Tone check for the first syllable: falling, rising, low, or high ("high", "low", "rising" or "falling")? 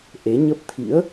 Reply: rising